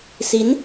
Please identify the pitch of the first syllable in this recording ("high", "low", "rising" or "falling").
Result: rising